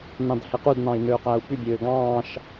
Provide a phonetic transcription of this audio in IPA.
n ɑ̃ d h e q u d n ɑ̃ i̯ n øː q æ u̯ p y bʲ øː ɡ ɑ̃ː ʃ

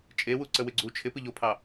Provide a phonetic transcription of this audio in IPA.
t͡ʃʼ e w u ǀ ə w ɪ ɡ͡ǀ u t͡ʃʰ ɪ p ɨ ʎ o pʰ ɑ

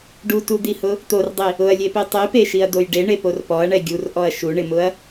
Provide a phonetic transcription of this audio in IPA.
ɖ u t u d̪ i h ʊ | t̪ o r dˤ i | ʊ ɐ̯ lʲ e p i tˤ i p e ʃ i ɐ̯ d̪ o j ɖ e ɳ e p o r p ɔ ɐ̯ ɳ ɛ ɡʲ u r ʔ ɔ ɐ̯ ʃ u ɳ ɪ m ʊ ɐ̯

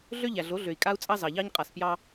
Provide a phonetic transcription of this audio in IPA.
ɮ ø˦ ʎ æ˨ ɮ o˨˦ ɮ ø˨ i̯ kʼ a˦ u̯ t͡sʼ ɑ˦ z ɑ˨ ʎ ɑ˦ ɲ qʼ a˨ s p j ɑ˦

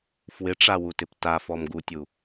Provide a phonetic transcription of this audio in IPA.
f w ɪ ʈ͡ʂ a w u t ɪ p t a f ɔ m ɡ u tʲ u

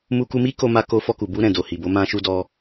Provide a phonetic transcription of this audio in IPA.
m u˧ k u˧ m i˦ k o˧ m a˧ k o˧ f ɔ˧ k u˨ b u˧ ɾ ɛ̃˨ d o˨ h i˨ b o˨˦ m ã˧ ʃ u˧ d ɔ˧

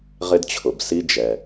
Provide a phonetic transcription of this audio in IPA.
ʁ ɪ˧ d t͡ɕʰ ʊ˩ b s i˧ d͡ʒ ɛ˩

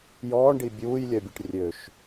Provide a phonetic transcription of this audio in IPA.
j ɔː ɳ ɖ i bʲ uː j lʲ œ bʲ e ʈ rʲ ø ʃ

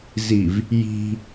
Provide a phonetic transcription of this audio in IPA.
z i v | j i̤

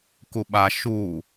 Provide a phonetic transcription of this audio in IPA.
k u ɓ a ʃ u

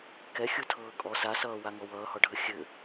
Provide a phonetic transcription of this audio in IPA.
k ɛ xʲ u tʰ ɤː kʼ ɔ s a s ʌː w a ŋ ɔ w ʌː h ɔ ɖʱ ə xʲ ɘ

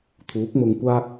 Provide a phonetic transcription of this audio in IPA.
t̪ʰ uː˨˥ k̚ m ʊ˧ ŋ kʷ aː˥ k̚

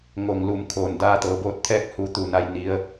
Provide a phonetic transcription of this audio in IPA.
ŋ o˧˩ ŋ l u˧˩ m kʰ oː˩ n d aː˧ t̪ ɤː˩˧ b oː˧˥ t̚ t̪ʰ ɛː˥˨ k̚ h u˧ t̪ uː˧˩ n a˧˥ j n i˧˥ ə̯

